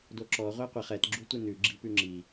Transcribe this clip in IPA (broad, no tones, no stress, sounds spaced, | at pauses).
d o ǁ ɔ ʁʷ æ qʷ e χ ɛ t ɡ͡ǁ u tʷ e n ʉ ɡ͡ǁ i p ʉ ŋ͡ǁ i